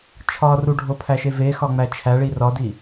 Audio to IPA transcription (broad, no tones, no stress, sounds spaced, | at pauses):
t͡ʃʰ ɒ r u ɖʱ o pʰ æ ʃ e v e x ɒ ŋ͡m æ t͡ʃʰ æ ɭ i r ɒ d i